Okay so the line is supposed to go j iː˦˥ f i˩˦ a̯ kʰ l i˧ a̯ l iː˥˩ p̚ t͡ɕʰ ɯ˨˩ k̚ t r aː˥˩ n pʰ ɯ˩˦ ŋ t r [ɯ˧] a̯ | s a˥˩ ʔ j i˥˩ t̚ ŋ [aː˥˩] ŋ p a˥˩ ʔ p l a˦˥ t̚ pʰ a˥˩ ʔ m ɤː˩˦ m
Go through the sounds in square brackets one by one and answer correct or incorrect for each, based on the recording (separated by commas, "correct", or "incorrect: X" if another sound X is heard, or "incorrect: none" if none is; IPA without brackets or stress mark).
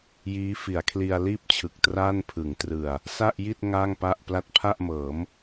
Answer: incorrect: ɯ˨˩, correct